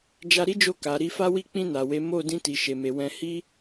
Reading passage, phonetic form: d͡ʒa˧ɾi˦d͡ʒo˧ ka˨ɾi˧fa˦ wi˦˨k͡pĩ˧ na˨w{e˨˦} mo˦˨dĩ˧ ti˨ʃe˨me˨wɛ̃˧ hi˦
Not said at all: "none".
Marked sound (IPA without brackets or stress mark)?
e˨˦